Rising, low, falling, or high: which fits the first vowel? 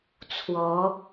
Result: rising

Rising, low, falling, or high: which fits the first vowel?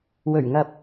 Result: low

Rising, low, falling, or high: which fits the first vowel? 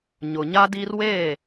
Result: low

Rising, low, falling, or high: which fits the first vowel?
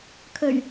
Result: low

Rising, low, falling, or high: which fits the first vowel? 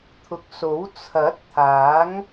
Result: low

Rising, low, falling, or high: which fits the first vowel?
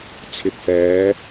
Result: low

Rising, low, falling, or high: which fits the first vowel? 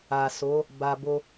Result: low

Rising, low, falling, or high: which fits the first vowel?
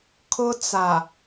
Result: high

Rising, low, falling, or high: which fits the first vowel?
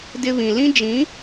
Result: high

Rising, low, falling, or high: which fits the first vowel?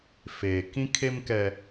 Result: low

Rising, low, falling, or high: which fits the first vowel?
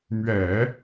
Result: low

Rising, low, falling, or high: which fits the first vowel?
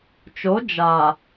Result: rising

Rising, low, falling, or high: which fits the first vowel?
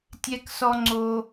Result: high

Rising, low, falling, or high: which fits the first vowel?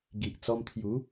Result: low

